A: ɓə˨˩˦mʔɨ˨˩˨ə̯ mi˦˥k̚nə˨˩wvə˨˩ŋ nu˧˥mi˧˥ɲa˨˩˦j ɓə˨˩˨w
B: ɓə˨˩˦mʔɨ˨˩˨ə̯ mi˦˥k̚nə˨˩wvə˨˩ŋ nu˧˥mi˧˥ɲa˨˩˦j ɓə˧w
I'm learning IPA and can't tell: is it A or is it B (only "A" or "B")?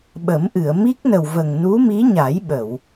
A